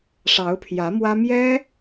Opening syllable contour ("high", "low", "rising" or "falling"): rising